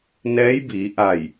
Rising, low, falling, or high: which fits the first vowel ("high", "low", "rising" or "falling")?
rising